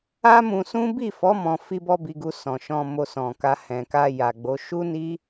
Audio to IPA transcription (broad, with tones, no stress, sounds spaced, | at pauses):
a˦ m ũ˧ s ũ˦ b i˦˨ f ɔ˨˦ m ɔ̃˧ f i˦ b ɔ˦ b i˧ ɡ u˧ s ɔ̃˨ ʃ ɔ̃˧ m o˧ s ɔ̃˨ k a˧ h ɛ̃˨ k a˧ j a˨ ɡ͡b o˨˦ ʃ u˦ n i˦